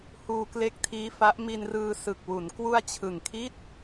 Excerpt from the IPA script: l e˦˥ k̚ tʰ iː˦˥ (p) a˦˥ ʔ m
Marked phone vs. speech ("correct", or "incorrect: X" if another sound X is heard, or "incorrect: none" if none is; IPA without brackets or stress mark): incorrect: f